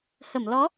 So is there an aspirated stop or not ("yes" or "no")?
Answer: no